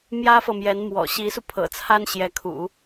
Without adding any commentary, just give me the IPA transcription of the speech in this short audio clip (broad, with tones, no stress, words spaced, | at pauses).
mjä˥fɤ˨mjɛ˧˥nmwɔ̰˨˩ ɕi˧˥su˧pʰɤ̰˨˩t͡sʰa˥n ɕjɛ˧˥ kʰṵ˨˩˦